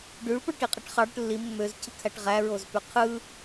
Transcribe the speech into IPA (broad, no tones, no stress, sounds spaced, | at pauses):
ɖ y ɭ p o ɭ ʈ i qʼ i ʈ χ ɑ ɽ ø ʈ lː i mː ø z cʰ ɯ kʰ æ ʈ ʁ æ ɹ o z p y qʰ ɯ